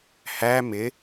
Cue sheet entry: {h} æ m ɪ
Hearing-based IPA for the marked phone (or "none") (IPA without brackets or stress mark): h